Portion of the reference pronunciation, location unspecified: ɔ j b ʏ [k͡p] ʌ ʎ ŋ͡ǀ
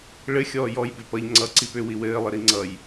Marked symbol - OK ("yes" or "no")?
no